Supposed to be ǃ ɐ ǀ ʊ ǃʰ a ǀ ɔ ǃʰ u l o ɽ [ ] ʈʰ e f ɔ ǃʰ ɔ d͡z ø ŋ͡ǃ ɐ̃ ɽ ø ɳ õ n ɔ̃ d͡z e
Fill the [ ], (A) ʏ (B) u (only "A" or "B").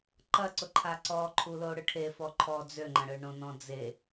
A